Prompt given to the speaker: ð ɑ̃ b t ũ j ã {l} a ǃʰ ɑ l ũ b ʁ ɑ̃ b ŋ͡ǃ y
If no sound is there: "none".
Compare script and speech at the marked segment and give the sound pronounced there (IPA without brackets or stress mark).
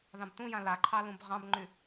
l